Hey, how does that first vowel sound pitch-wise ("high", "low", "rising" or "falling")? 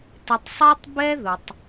low